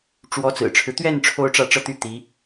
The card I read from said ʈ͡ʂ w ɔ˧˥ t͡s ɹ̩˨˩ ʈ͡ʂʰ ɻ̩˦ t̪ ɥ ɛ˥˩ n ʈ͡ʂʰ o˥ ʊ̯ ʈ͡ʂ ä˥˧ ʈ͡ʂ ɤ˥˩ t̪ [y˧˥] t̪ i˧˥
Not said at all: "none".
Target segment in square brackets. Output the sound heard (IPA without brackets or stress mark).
y˥